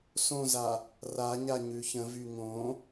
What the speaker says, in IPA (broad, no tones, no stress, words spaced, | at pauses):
sõza | raɲa ɲʉçə̃vy ŋõ